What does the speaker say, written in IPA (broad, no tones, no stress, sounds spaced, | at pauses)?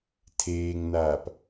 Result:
tʰ eː ŋ n aː p